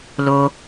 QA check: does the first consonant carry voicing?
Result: yes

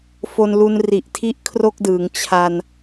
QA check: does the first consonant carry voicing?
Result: no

